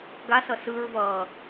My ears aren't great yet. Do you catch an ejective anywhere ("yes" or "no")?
no